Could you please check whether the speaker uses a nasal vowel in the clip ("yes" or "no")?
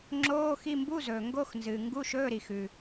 no